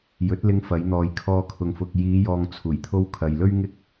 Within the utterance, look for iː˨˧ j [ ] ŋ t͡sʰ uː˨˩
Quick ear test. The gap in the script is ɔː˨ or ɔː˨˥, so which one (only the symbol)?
ɔː˨